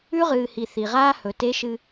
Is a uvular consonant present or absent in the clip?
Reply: present